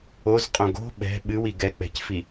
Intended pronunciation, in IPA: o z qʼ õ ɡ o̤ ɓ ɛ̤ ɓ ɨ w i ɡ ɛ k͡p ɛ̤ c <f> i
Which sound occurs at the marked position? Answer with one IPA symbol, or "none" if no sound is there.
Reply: f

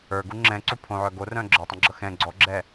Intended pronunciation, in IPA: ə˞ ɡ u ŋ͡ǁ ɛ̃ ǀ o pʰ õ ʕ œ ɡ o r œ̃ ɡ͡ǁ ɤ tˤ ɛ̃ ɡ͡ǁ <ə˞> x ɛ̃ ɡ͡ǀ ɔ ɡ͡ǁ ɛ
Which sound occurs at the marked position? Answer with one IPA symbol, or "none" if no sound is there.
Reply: ɤ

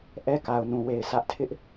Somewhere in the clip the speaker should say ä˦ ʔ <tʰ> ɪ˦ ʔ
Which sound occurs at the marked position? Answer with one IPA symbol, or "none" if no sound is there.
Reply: tʰ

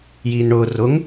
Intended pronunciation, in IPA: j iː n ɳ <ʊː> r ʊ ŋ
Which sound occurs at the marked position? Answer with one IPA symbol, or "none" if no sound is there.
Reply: ʊː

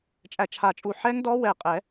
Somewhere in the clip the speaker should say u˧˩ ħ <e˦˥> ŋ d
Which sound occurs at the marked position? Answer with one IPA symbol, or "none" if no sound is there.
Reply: ɛ˦˥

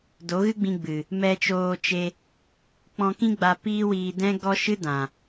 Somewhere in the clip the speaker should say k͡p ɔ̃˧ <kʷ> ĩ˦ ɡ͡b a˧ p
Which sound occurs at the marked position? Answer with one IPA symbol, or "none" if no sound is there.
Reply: k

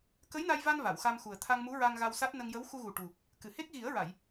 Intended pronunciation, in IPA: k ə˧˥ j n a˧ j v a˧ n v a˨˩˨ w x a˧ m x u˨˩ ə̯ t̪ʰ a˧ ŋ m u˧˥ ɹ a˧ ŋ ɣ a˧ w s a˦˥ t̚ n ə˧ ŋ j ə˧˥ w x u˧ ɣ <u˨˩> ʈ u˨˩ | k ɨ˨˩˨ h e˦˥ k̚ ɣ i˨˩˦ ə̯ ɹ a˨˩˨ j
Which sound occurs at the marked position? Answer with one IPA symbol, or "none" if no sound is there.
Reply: u˨˩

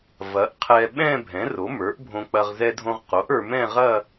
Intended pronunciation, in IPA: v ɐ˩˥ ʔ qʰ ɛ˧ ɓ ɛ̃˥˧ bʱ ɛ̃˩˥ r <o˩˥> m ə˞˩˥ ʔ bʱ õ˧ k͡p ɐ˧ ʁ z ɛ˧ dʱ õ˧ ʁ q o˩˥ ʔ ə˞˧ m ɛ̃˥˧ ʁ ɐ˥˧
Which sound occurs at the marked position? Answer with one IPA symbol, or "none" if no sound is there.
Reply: o˩˥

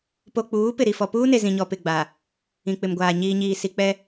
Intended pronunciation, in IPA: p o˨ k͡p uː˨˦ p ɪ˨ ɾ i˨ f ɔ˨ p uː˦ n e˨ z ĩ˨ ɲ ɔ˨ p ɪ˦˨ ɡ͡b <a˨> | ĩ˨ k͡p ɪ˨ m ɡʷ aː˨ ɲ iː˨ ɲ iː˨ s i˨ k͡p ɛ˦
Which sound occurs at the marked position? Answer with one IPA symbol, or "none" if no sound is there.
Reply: a˨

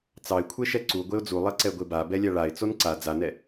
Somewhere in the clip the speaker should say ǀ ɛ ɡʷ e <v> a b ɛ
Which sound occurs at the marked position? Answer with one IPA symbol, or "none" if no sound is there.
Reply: b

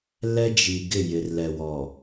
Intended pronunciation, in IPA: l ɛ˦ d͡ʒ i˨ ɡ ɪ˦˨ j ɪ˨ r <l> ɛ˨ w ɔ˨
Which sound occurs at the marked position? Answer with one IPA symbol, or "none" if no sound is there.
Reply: l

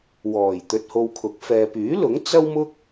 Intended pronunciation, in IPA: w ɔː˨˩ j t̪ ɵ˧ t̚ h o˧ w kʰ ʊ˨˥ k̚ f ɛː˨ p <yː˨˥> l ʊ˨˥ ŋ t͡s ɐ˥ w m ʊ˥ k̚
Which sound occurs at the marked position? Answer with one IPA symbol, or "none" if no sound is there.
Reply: yː˨˥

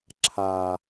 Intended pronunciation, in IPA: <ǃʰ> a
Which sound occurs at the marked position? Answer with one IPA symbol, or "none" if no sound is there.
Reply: ǁʰ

